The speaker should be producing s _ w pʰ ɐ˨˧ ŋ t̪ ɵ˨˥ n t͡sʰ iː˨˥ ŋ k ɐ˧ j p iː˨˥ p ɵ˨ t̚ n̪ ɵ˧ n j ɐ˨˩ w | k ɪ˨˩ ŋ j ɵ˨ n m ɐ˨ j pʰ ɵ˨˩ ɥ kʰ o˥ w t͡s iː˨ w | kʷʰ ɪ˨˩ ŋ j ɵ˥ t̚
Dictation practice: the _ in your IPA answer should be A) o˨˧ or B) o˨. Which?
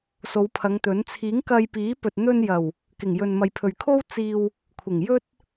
A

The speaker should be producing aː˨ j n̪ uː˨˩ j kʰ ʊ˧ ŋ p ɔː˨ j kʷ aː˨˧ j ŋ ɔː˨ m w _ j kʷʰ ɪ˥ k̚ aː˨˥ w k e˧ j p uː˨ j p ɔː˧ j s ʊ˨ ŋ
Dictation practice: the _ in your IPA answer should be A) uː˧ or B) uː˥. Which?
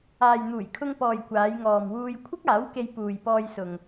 A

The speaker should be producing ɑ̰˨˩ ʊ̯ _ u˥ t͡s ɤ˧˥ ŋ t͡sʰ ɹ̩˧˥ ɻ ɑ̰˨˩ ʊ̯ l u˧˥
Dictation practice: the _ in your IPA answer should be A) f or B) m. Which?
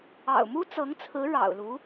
B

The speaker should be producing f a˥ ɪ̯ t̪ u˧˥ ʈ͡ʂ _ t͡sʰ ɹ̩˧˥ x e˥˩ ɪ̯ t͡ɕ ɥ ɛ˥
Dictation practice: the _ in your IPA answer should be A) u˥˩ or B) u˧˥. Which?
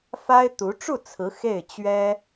A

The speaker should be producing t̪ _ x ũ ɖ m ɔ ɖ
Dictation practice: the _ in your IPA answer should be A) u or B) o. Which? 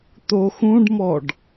B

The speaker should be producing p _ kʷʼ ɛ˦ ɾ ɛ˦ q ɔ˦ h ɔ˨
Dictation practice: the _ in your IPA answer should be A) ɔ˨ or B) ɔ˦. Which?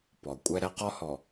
A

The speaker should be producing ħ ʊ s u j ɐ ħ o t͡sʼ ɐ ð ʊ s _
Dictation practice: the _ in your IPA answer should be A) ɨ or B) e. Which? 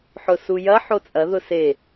B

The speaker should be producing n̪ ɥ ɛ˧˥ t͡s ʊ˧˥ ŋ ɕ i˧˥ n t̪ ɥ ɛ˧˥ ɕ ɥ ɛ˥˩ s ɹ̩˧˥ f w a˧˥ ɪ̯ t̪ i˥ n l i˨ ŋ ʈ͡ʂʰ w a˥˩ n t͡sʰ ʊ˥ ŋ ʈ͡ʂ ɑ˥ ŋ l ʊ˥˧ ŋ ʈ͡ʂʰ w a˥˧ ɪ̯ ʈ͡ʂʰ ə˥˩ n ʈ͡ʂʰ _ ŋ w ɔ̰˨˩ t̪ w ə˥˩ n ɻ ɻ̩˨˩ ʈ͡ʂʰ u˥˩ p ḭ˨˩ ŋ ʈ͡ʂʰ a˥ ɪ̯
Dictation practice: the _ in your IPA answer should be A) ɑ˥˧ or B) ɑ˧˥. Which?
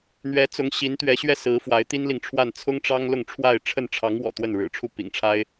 B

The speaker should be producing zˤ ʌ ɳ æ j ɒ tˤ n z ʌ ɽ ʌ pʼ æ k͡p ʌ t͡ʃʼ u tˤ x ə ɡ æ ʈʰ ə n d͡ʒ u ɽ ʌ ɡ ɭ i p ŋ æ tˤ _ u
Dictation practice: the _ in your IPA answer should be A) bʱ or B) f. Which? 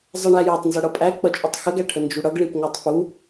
B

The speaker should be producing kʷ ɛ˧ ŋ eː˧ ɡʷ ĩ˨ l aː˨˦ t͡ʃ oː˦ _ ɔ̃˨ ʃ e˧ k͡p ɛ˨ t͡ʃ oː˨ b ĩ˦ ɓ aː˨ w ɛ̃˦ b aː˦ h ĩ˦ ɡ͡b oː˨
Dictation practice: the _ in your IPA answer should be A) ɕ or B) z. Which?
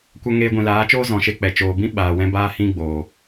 B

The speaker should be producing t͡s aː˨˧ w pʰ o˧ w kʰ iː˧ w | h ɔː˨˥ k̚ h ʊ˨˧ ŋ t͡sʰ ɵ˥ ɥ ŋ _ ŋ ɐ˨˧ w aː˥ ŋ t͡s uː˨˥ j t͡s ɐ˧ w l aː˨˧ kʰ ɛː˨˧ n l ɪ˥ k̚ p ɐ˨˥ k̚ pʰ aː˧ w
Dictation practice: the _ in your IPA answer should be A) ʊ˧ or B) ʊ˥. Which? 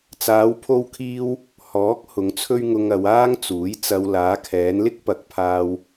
A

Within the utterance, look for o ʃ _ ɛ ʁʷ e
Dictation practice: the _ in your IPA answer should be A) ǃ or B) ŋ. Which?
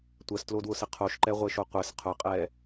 A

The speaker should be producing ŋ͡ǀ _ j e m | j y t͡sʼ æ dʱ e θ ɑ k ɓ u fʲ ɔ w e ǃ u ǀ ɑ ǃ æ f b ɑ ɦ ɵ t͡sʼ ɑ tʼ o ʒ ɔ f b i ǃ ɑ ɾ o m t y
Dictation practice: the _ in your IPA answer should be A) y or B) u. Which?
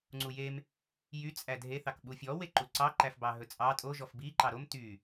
B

